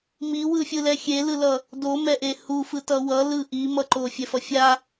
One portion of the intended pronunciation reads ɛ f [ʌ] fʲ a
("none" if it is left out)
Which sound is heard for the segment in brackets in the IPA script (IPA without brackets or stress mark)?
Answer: ʌ